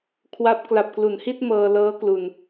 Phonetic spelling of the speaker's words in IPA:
kʰwa˦˥p̚ kla˨˩p̚klu˩˦nhi˥˩t̚ mɤː˧lɤː˦˥ klu˧n

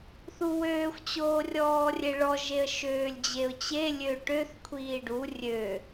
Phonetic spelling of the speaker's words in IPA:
θuwøːxʷ t͡ɕoːrʲɔːrʲeɭɔ ʒeə̯ʃøːlʲd͡ʑeʊ̯t͡ɕe lʲøʈøθ kʷʰiːɖu rʲø

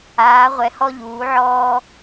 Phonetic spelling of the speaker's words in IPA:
aː˨˦ʁʷɛ˨˦hɔ˦ʎuː˨˦ ʕɔː˦

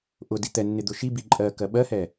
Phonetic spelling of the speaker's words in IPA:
ʔʊdi t̪ɛnːɪd̪ʊ ʃibi ǃʼɜkɜ ɓɜhɛ

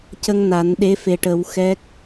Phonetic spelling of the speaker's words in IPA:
cə˧ŋ na˨˩˦nɗe˧˥ fe˨˩ʈə˨˩˦w xɛ˦˥k̚

